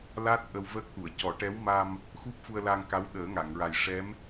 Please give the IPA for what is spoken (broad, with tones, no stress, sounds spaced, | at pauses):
l a˦˥ t̚ ʔ ə˧ w v əː˦˥ k̚ t̪ u˨˩˨ ə̯ c ɔ˨˩˦ ʈ ɛ˧˥ w m a˧ m | x u˦˥ p̚ f u˧ ə̯ l a˧ ŋ k a˧˥ w ɗ əː˨˩˦ ŋ a˨˩˨ ŋ ɹ a˨˩ j ʂ ɛ˧˥ m